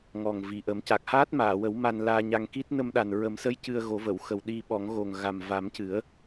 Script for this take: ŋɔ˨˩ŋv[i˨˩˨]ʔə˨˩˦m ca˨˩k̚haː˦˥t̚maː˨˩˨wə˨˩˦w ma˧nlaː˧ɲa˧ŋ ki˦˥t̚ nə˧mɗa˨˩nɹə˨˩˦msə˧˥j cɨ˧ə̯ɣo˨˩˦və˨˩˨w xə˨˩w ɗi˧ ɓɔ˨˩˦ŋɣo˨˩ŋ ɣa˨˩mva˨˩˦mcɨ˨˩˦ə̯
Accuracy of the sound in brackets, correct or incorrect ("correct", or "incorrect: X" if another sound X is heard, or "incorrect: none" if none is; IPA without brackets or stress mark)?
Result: correct